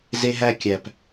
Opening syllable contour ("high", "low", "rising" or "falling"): high